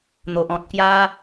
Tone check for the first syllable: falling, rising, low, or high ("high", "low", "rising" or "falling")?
low